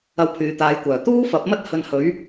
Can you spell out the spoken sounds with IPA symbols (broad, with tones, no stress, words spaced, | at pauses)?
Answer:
ɐ˧wpʰyː˨t̪aː˨˧jkʷœː˨˩ t̪uː˥fɐ˨˥p̚mɐ˥t̚ hɵ˧nhɵ˨˥ɥ